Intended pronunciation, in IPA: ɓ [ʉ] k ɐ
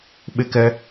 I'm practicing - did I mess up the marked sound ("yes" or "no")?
yes